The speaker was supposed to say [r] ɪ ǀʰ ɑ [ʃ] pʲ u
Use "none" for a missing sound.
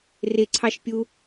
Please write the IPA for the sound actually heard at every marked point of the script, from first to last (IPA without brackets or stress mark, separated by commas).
r, ʃ